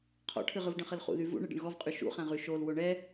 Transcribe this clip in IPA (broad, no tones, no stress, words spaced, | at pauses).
qʰɔ̰ʈʰɨʁɯv ɖə̃χəlχṵðy vṵ ɳɨɖə̰ɳɣɔvqʼy ʃṵχæ̃ʁy ʃol woɳɛ